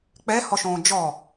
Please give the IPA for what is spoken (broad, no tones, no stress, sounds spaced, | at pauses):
k͡p ɛ h ɔ ʃ õː d͡ʒ ɔ